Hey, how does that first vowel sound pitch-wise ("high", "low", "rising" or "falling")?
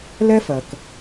high